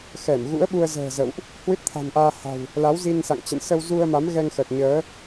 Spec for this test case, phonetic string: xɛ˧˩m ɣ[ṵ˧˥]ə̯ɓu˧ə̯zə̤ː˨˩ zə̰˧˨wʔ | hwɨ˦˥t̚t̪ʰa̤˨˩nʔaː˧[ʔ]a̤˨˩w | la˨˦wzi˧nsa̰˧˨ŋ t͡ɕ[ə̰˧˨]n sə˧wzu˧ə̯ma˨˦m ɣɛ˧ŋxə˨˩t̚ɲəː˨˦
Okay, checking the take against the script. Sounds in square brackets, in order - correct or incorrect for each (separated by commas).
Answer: correct, incorrect, correct